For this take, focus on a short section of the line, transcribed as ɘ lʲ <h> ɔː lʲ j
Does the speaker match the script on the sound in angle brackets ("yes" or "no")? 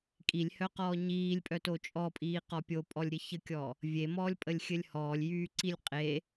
yes